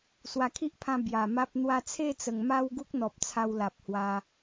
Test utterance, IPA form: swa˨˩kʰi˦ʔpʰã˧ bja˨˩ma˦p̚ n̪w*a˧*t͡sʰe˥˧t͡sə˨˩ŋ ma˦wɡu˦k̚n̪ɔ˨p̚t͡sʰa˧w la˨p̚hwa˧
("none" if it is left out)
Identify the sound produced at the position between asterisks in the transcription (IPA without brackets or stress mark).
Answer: a˧